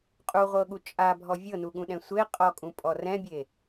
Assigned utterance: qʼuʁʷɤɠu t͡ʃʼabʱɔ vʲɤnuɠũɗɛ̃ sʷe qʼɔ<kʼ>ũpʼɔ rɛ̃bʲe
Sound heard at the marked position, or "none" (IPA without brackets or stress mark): kʼ